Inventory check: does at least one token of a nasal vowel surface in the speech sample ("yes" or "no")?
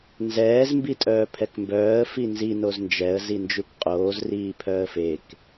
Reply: no